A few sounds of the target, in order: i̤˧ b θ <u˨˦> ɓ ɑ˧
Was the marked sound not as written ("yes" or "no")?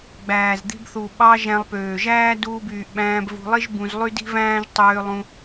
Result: yes